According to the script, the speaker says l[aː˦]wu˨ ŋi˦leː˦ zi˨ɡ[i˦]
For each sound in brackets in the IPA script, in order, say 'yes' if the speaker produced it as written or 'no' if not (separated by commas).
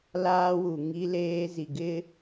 yes, no